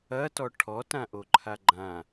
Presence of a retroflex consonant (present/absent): present